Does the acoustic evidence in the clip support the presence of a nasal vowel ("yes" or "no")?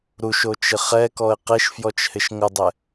no